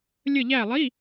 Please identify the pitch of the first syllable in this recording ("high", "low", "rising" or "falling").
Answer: falling